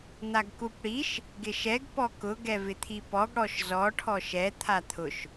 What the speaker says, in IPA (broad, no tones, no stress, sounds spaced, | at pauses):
n̪ a ɡ k u p ɽ i ʃ | ɡ ɪ ʃ ɛ ɡ p ɔ k ʊ ɡ ɛ v ɪ t̪ʰ i p ɔ ɡ ɽ ɔ ʃ z ɔ ʈʰ ɔ ʃ ɛ t̪ʰ a t̪ʰ ʊ ʃ